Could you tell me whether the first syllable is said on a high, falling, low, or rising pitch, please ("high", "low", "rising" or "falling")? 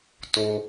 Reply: high